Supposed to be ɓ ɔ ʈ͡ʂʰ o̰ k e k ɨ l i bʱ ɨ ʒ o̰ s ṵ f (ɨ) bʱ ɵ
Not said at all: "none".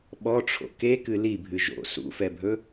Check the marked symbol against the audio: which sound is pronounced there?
ɛ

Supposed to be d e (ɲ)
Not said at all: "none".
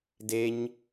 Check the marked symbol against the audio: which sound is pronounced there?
ɲ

